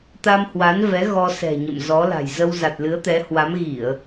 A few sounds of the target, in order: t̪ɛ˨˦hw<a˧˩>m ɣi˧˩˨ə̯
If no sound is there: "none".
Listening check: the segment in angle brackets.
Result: a˨˦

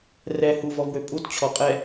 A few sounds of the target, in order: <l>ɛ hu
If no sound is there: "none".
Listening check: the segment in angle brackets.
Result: r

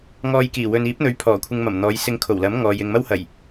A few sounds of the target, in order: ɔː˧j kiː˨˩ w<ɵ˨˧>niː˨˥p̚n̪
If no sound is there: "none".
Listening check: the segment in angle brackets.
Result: ɵ˨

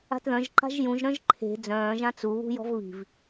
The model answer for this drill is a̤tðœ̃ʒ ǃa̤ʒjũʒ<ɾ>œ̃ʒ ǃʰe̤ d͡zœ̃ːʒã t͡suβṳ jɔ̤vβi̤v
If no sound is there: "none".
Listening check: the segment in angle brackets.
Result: ɾ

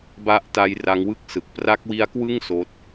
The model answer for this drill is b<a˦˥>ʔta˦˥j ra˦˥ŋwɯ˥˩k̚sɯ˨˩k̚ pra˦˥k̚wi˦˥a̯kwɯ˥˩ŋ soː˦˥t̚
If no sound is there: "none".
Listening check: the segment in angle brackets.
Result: a˦˥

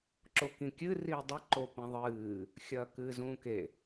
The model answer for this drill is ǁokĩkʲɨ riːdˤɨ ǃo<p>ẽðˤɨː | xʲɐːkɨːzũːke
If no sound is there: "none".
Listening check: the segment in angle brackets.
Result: p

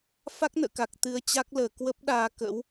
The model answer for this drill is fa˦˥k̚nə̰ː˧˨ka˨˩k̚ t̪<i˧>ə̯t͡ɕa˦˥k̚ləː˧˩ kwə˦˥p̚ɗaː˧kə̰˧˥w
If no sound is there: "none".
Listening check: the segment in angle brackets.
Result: ɨ˧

